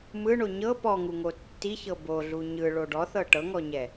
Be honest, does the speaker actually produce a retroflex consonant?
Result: yes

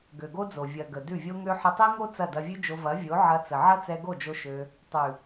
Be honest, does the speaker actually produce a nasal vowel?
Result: no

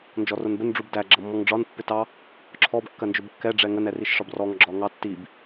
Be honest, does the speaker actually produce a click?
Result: yes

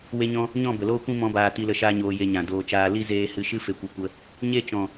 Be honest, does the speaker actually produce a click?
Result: no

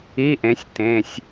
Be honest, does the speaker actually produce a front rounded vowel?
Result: no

